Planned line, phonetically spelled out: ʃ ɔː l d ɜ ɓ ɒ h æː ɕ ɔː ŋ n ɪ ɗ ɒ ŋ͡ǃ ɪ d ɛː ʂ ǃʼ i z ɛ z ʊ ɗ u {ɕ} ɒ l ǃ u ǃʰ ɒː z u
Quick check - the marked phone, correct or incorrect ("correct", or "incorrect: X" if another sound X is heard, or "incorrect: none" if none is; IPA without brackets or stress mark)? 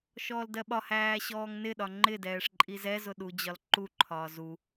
incorrect: d͡ʑ